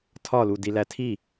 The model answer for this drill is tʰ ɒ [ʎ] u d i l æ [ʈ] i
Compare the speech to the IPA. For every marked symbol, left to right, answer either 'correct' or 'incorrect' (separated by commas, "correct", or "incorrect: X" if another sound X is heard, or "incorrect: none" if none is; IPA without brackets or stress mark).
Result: incorrect: l, incorrect: tʰ